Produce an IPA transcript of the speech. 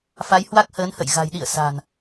f a˨˦ j h w a˦˥ k̚ h əː˨˦ n h ə̰˧˨ j ɣ a̤˨˩ j ɗ ḭ˧˨ ə̯ s a̤ː˨˩ n

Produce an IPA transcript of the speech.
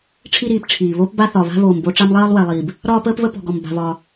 ʈ͡ʂʰ i˦ ɾ iː˨ p ʈ͡ʂʰ iː˨ β o˦ p b a˦ θ ɒ˨ β a̤˦ β oː˨ m b o˦ ʈ͡ʂ a˦ m lˠ ɜː˦ lˠ w ɛ˨ lˠ iː˨ b | ɾ ɒː˦ p əː˦ p β ə˦ p ɔ̤˨ ɡ ɔ˨ m b a̤˨ β ɒː˨

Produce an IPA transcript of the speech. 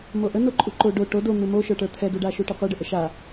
m o ʔ ə n o ǃʼ u ǃ o ɖ o ʈ o d o n̪ u m o ʃ ə˞ ʈ ə˞ t̪ʰ ɛ d u ɖ a ʃ u ʈ ə qʷ ɛ ɖ ə ʔ ə ʃ a

